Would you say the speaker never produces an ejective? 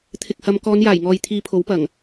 yes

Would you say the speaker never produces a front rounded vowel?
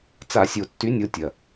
no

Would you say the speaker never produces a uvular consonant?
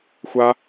yes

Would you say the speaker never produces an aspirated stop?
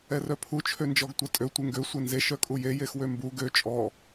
no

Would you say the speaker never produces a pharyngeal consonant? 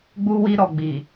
yes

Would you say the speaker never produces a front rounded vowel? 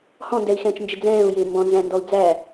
yes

